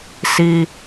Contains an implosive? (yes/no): no